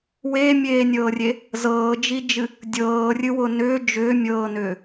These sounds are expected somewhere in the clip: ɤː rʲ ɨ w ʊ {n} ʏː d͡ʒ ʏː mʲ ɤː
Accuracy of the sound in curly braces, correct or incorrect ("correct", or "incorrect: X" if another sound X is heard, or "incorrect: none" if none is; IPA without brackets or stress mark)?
correct